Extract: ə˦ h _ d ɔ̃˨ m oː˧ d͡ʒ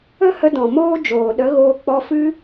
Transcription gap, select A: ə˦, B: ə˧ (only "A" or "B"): B